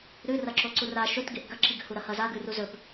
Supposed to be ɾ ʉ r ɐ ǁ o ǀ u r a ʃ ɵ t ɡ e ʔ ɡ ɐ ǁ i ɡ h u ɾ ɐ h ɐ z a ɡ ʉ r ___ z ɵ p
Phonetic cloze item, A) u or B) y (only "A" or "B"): A